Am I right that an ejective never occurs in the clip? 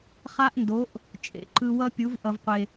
no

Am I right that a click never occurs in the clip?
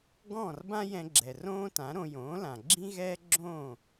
no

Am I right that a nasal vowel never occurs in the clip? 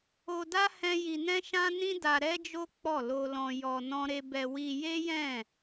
no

